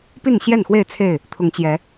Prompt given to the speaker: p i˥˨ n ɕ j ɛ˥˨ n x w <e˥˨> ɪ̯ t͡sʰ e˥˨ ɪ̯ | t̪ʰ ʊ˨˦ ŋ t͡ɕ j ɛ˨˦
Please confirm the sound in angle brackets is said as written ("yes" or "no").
yes